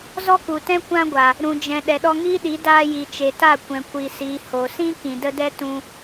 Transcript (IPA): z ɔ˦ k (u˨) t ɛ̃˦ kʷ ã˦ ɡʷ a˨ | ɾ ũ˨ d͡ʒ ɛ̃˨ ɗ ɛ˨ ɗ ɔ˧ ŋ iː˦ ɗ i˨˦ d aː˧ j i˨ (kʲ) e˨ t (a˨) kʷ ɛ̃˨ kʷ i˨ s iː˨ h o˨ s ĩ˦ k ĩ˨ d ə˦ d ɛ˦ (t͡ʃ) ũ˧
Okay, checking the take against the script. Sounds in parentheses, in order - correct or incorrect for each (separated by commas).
correct, incorrect, incorrect, incorrect